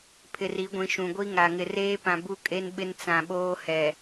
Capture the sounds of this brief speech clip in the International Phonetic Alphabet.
pʰ ɪ˨ r i˨˦ ɡʷ ĩ˨ ʃ ũ˨ ɡʷ i˦ ŋ a˨ ŋ ɪ˨ r eː˦ p ã˨ b u˦ kʼ e˦ n ɓ ɪ˦ n t͡s ã˨ ɓ oː˦ h ɛ˨

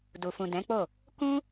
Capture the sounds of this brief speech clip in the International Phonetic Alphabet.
d u˨ f ũ˨ d ɛ̃˨˦ k͡p o˦˨ | k ũ˦

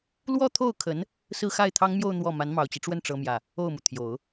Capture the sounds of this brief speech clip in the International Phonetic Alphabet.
l w ɔ˥˧ t̪ʰ o˥˩ ʊ̯ kʰ ə˧˥ n | s ɹ̩˥˧ x a˥˩ ɪ̯ t̪ʰ ɑ˥ ŋ m j o˥˧ ʊ̯ n̪ w ɔ˥˩ m a˧˥ n m ɑ˨˩ ʊ̯ t͡ɕ i˦ ʈ͡ʂ w ə˥˩ n ʈ͡ʂ ɤ˥ m j ä˥˩ | o˥˩ ʊ̯ m u˩ t̪ʰ j o˨˩˦ ʊ̯

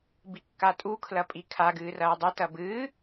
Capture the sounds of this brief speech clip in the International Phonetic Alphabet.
b i kː a tʼ u kʰ l ɐ pʼ i kʰ a ɡ ɨː r ɐː dˤ e t ɐ b ɨː

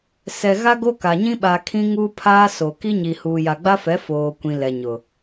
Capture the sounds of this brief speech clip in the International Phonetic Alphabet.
s ɛ˨ ɣ a˦ ɡ o˦ k a˨ ɲ ĩ˦ ɓ a˨ kʰ ĩ˦ ŋ uː˦ pʰ aː˦ s o˨ k i˦ ɲ i˨ h uː˨ j a˨ ɡ͡b a˦ f ɛ˨˦ f oː˨ kʷ ĩ˨ l ɛ˨ ɲ ʊ˨

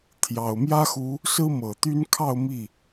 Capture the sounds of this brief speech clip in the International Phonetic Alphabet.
t̪ʰ j ɑ˨˩ ʊ̯ m j ä˥ x u˧˥ | s ɹ̩˥ m ɤ˨˩ t̪ y˥ n kʰ ɑ˥˧ ʊ̯ m i˥˩

